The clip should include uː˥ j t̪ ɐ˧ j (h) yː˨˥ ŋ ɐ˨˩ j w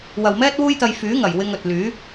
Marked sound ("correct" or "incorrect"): incorrect